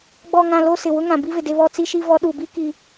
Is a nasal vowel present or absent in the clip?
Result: present